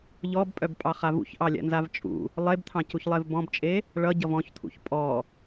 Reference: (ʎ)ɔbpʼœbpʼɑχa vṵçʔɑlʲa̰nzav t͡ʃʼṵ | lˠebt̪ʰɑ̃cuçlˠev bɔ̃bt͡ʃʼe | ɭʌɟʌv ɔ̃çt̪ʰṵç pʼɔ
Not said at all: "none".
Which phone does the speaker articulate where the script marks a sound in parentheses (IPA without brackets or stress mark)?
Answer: ʎ